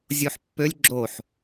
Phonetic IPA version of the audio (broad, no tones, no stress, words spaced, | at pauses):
zʲoħpːølʲ ɡ͡ǁoħ